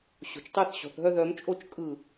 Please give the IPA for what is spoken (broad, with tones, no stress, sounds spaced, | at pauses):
ɕ o̤˨ t͡ʃ tˤ œ˦˨ θ ɕ ɔ̤˨ θ ɦ œ˦ ð œ˨˦ m t͡ʃʼ o˦ t͡ʃ kʼ ɯ˦˨